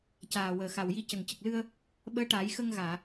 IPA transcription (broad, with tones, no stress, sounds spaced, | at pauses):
c aː˨˩ w əː˨˩ x a˨˩ w j i˧ c ə˨˩ ŋ c ə˨˩ k̚ l ɨ˧ ə̯ | ɓ əː˧˥ ʈ aː˨˩˦ j x ə˧ ŋ ɣ aː˨˩˨